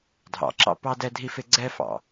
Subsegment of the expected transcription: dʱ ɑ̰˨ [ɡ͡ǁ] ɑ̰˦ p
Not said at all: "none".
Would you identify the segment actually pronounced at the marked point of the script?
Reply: ǁ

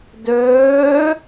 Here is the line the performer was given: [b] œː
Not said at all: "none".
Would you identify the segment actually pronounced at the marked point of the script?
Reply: d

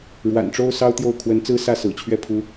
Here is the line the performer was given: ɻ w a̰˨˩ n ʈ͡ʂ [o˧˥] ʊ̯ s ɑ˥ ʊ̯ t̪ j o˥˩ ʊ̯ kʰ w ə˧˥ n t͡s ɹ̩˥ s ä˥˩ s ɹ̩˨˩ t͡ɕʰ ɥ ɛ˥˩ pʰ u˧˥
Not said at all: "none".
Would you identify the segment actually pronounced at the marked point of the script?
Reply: o˥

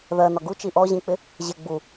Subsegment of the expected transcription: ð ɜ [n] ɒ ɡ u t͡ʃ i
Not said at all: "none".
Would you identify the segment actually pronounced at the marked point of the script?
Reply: n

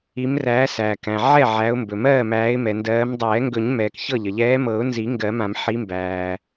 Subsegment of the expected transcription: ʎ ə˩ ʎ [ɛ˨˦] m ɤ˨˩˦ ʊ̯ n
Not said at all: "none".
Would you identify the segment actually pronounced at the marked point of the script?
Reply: ɛː˨˦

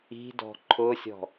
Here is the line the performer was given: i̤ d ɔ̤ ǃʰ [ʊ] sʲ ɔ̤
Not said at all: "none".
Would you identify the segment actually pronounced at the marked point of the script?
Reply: ʊ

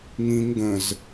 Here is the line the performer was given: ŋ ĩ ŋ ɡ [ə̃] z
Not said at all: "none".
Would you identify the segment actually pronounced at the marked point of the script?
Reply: ə̃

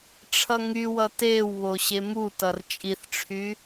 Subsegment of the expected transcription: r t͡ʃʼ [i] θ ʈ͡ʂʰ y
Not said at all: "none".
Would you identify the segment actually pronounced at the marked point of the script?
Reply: i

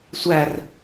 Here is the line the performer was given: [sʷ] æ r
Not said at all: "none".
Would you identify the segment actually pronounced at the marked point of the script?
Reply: sʷ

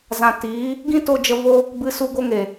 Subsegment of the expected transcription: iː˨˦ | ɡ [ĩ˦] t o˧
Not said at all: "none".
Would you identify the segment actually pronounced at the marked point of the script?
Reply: ĩ˦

